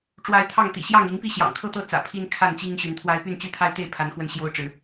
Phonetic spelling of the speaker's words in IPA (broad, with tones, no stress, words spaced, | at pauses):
ʈ͡ʂwa˨˦ɪ̯ t̪ʰɑ˥˨ŋt̪ḭ˨˩ ɕjɑ˥˨ŋi˨˦ŋpi˥˨ɕjɑ̰˨˩ŋ kʰɤ˥˨t̪ɤ˥˨t͡sä̰˨˩ pʰi˦nkʰa˥˨nt͡ɕi˦ŋ ɕy˨˦nt̪ʰwa˦ɪ̯ py˥˨nt͡ɕy˥˨t̪ʰa˦ɪ̯t̪e˥˨ɪ̯ pʰa˨˦nxwə˧n ɕjo˦ʊ̯ʈ͡ʂɻ̩˨˦